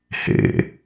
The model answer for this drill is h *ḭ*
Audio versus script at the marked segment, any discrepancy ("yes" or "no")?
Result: yes